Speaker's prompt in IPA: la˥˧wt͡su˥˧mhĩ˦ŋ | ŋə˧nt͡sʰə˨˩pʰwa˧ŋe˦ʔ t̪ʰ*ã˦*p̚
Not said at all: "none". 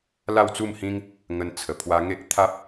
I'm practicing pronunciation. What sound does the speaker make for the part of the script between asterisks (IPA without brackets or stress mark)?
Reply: a˦